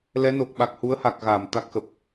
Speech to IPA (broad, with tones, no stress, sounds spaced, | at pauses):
l ɛ˨˦ n o˨˩ k̚ ɓ a˨˩ k̚ h u˨˦ ə̯ h a˨˩ k̚ ɣ a˧˩ m t̪ a˦˥ k̚ x ə˨˩ p̚